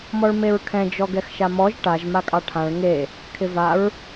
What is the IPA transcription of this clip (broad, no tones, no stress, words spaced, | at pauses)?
mɔɭmeɹkʰɛ̃ d͡ʒɔɡɛxʃamɔʒ ʈaʒ makʼɑʈʰãɭ ŋe | kʰɪvaɹ